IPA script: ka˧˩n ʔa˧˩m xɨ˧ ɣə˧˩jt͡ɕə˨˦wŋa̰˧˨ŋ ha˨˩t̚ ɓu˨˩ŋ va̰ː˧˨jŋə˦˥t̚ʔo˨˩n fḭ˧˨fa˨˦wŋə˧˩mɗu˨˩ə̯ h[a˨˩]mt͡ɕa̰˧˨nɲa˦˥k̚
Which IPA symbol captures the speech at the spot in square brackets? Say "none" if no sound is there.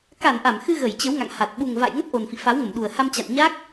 a˧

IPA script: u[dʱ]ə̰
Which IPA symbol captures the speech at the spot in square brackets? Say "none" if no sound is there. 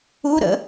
ɾ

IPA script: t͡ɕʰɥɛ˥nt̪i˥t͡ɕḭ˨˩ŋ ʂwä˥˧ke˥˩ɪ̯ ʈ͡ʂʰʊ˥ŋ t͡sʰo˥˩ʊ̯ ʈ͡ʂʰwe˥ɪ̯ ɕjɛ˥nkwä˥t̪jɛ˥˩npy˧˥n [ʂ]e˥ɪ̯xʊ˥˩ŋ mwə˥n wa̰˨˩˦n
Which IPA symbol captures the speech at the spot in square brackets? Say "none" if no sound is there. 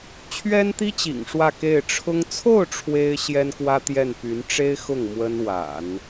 ʈ͡ʂ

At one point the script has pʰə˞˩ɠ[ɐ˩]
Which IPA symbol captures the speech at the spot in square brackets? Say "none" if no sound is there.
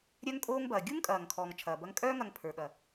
ɐ˩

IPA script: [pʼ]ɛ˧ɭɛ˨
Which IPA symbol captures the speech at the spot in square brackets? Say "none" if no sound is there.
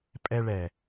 pʼ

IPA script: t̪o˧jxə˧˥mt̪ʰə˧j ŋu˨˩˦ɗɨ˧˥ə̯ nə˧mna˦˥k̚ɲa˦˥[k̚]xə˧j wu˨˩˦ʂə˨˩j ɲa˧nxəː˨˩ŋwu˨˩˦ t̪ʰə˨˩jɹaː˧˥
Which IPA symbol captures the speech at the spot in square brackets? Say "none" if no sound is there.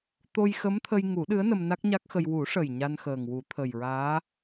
k̚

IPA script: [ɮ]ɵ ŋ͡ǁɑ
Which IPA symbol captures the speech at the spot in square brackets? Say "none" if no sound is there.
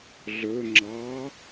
ɮ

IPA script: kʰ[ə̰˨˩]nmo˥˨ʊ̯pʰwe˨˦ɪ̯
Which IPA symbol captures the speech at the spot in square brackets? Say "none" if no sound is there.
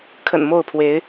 ə̰˨˩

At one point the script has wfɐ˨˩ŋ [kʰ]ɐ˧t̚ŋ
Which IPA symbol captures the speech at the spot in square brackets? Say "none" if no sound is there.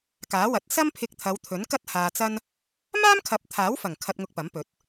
kʰ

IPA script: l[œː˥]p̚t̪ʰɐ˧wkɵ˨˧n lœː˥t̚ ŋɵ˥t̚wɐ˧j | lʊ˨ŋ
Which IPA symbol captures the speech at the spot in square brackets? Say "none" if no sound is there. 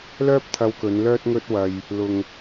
œː˥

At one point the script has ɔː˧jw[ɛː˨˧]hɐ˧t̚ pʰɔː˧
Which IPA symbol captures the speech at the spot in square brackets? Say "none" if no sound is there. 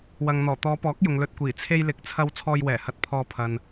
ɛː˨˩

